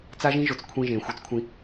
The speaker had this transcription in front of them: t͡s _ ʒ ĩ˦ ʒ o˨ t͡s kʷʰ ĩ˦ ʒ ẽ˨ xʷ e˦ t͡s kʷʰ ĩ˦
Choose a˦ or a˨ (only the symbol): a˦